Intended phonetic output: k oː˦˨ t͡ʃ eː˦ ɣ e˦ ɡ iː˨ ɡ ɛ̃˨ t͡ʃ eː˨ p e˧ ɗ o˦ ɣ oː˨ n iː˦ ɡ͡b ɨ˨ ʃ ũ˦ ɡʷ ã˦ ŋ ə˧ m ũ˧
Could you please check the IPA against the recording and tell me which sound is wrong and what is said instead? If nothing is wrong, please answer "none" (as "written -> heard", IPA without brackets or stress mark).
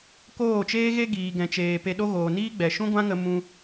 ɨ˨ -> ɛ˨